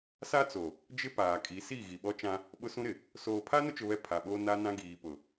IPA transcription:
s a˦ t͡s o˨ | d͡ʒ ɪ˦ p aː˨ kʼ i˨˦ s i˦˨ ɣ i˨ ɓ ɔ˦ t͡ʃ ã˦ | ɓ ʊ˦ s ũ˦ ɾ ɪ˨ | s oː˨ pʰ a˦ n ʊ˦ t͡ʃ ʊ˦ β ɛ˦ pʰ a˨ ɓ oː˦ n a˦ n ã˦ ɡ iː˨ p ʊ˨

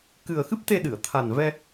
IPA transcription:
k ɨ˨˩ ə̯ x ɨ˦˥ p̚ t̪ e˧ ɗ ɨ˨˩˨ ə̯ t̪ʰ a˨˩ n v ɛ˧

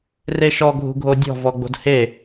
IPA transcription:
r e ʃ ɔ ɡʱ ṳ ɡʱ o dʲ ɔ̤ v ɔ ɡ͡b o̤ d h e

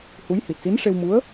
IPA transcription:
h u˧˥ j h i˨˩ t̚ s i˧˥ n ʂ e˧ w m u˧˥ ə̯

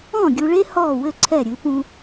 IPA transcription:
ɔ̃˥˩ ɡʲ u˧ ɭ e˥ h ɔː˥˩ w ɘ˥˩ ǀʰ ɛ˥˩ ɾʲ ɨ˩˥ p ũ˧

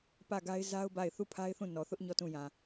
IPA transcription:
p ä˦˨ ɡ a˦ ɪ̯ z a˦ ʊ̯ b a˦˨ ɪ̯ θ u˦˨ pʰ a˦ ɪ̯ θ ũ˦˨ n ɔ˨ θ ʊ˦ ʔ ɲ ɔ˦˨ t ũ˦˨ j ã˨

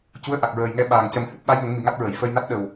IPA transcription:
c u˧˥ ə̯ ʔ a˨˩ k̚ ɹ əː˨˩ j ŋ ɛ˧ ɓ aː˨˩ ŋ c ə˨˩ m h ɨ˦˥ p̚ ɓ a˧˥ j ŋ ə˨˩˦ ŋ m i˨˩˨ ŋ a˦˥ t̚ ɹ ə˨˩˨ j f ə˧ j n a˦˥ t̚ ɗ ə˨˩ w

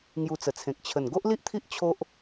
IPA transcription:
ŋ j u˧ t͡s ə˨˩ t͡sʰ ẽ˨ k̚ t͡ɕʰ ə˨˩ n ɡ o˦ ʔ l i˦ ʔ t̪ʰ i˦ ʔ t͡ɕʰ o˦ ʔ

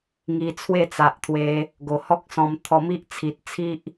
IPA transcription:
ŋ i˧ t͡sʰ w e˥˧ t͡s a˨ ʔ t̪ʰ w e˧ | ɡ o˨˩ h ɔ˦ k̚ s ɔ̃˧ m t̪ʰ ɔ˧ m i˦ ʔ t͡sʰ i˨ t̚ t͡sʰ i˦ ʔ

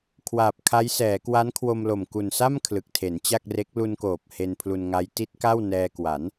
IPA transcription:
kʰ w aː˨˩ p̚ kʰ a˦˥ j s ɛː˩˦ k w a˦˥ n kʰ w o˧ m l o˨˩ m k u˨˩ n s a˥˩ m kʰ l ɯ˨˩ k̚ tʰ e˩˦ n t͡ɕ a˥˩ k̚ r e˦˥ k̚ l u˧ n k oː˨˩ p̚ h e˧ n pʰ l u˧ n ŋ a˦˥ j t i˦˥ t̚ k a˥˩ w n ɛː˧ k w a˩˦ n

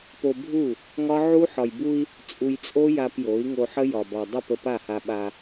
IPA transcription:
p o˧ bʱ u˦˨ | ŋ ɒ˦ ʕ u˦ ħ ɒ˨ j b u˧ i̯ | t͡sʼ u˧ j t͡sʼ o˦ j a˧ p j o˨˦ i̯ ŋ o˧ ħ ə˦ j ɒ˨ b ɒ˨ dˤ ə˦˨ p ə˧ p a˦˨ h a˧ ɓ a˧

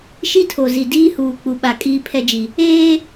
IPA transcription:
ʃ i˦ tʰ o˨ z i˨ d iː˦ h uː˨ k͡p u˨ ɓ a˨ kʼ iː˦ pʰ ɛ˦ d͡ʒ i˨ | eː˦

